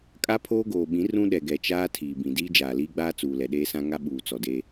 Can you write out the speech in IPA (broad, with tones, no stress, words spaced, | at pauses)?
kʼa˦pʰoː˦ɡoː˨ɓĩ˨˦ rũ˦ɗɛ˨ɡɛ˨t͡ʃaː˦ tʰiː˨bĩ˨ diː˦d͡ʒaː˨liː˦ɡ͡baː˦ t͡suː˨ lɛ˨ɗeː˦sã˦ŋa˦ ɓuː˨t͡sɔ˨deː˦